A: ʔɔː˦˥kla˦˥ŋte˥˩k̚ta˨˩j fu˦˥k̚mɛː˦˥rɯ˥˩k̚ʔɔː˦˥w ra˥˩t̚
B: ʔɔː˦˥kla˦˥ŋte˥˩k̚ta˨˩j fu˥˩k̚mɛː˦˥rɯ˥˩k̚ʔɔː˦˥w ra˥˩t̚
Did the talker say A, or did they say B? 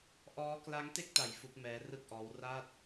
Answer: A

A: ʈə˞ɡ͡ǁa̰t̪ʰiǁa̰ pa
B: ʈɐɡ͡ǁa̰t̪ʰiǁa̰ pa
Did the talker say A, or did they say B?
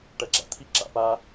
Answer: B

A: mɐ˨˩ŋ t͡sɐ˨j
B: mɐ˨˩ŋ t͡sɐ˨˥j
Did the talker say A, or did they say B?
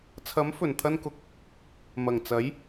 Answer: B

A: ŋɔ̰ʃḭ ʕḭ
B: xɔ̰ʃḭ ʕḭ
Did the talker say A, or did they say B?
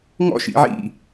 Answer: A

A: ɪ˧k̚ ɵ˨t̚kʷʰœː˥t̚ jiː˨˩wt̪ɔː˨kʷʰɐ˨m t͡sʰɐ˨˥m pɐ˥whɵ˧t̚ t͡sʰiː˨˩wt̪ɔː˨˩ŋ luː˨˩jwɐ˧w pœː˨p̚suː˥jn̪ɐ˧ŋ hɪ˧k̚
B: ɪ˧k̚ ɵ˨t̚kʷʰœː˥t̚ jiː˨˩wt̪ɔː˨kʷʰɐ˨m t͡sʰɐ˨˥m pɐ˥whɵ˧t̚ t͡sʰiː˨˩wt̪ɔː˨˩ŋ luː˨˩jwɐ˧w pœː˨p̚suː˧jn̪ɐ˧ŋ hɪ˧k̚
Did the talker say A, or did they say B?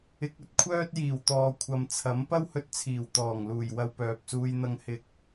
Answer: B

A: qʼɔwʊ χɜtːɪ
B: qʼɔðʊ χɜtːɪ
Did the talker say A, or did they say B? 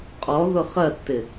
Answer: B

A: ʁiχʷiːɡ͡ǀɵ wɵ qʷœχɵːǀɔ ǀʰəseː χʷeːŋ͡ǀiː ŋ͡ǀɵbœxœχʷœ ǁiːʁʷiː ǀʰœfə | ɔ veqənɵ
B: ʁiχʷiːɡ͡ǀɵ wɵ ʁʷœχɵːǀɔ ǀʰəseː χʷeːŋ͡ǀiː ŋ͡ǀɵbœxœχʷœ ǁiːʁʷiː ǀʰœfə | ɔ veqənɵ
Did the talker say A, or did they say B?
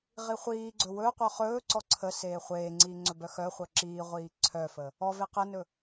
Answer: A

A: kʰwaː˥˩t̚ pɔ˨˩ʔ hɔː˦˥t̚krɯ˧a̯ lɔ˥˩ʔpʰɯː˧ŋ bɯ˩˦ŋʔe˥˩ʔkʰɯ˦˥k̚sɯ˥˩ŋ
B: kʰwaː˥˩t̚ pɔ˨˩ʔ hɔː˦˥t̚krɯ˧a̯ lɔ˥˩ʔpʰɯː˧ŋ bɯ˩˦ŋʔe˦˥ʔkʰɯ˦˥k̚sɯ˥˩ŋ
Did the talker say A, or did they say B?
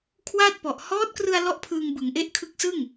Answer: B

